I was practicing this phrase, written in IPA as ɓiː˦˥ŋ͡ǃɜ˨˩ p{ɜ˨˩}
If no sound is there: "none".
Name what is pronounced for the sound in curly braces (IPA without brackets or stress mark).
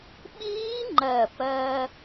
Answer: ɜ˧